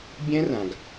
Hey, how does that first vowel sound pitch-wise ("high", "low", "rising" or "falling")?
high